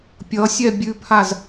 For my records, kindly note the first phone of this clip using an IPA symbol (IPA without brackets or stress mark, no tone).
pʲ